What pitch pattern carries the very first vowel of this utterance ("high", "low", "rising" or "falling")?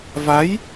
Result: rising